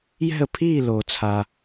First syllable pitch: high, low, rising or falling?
falling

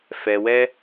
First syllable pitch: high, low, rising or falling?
low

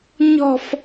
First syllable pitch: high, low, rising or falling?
high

